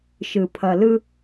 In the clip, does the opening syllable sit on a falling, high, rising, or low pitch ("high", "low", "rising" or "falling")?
low